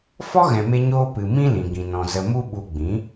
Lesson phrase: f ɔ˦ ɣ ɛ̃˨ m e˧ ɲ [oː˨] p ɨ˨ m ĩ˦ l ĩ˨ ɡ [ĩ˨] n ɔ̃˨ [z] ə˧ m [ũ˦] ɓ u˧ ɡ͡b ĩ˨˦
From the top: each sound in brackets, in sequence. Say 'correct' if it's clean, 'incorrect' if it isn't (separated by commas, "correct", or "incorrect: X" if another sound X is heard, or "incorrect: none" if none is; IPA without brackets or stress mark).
incorrect: oː˧, correct, correct, incorrect: u˦